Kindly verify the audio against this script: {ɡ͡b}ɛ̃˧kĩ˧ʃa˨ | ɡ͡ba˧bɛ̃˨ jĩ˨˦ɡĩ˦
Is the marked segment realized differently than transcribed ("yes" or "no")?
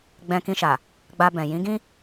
no